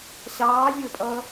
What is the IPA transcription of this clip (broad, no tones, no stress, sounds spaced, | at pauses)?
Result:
ɕ ɑː vʲ ə˞ pʼ ʌː